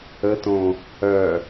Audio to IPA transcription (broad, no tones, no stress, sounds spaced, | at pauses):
ə t õ | œ